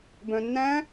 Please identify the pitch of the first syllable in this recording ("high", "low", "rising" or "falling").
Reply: low